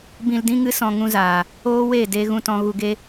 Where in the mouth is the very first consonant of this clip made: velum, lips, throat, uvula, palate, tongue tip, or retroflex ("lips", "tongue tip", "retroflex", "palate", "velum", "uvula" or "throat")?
lips